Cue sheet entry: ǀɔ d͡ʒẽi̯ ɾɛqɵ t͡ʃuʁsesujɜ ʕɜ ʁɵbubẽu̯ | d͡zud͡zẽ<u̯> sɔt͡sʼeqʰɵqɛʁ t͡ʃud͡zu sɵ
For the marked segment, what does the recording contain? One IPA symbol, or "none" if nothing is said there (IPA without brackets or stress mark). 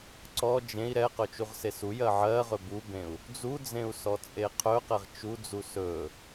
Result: u̯